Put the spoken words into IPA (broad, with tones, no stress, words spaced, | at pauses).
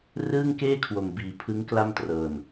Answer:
rɯː˥˩ŋkeː˥˩kʰwo˨˩m biː˨˩pʰɯ˦˥ŋ kla˥˩mtrɤː˨˩n